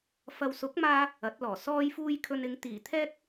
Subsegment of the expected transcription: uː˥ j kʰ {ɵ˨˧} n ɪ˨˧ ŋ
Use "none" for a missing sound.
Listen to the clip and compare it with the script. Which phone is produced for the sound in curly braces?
ɵ˧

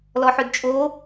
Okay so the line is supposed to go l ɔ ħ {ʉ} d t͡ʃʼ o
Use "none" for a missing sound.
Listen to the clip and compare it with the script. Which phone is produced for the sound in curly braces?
ʉ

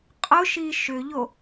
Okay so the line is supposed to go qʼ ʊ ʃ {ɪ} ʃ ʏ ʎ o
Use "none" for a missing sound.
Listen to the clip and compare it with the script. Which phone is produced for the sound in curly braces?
i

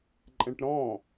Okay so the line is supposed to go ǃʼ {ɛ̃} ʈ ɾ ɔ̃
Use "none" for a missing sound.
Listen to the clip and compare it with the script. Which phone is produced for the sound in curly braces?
ɛ̃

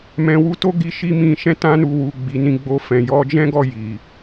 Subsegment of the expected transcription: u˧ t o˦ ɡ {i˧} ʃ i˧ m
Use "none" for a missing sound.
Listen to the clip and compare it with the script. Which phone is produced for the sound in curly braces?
i˧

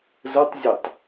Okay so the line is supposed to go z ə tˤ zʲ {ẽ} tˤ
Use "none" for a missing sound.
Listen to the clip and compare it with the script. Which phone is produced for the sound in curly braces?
e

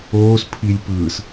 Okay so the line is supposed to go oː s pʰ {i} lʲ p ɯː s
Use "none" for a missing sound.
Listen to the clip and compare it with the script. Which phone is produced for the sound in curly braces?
i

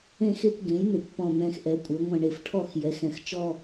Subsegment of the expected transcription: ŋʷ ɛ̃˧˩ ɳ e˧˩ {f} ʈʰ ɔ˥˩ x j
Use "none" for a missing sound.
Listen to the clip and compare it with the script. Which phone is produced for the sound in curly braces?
f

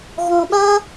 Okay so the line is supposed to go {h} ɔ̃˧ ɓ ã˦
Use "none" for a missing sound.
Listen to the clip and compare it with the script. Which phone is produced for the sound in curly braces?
ɣ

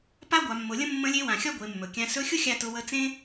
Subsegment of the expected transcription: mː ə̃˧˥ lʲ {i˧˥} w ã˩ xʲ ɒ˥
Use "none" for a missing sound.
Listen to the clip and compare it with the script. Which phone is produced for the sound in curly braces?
e˧˥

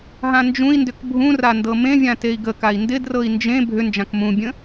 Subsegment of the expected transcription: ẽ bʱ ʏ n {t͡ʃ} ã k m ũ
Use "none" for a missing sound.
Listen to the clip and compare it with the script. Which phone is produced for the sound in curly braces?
d͡ʒ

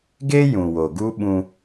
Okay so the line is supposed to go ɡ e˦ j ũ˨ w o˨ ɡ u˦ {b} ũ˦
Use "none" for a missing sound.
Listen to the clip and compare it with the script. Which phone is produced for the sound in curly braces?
ɓ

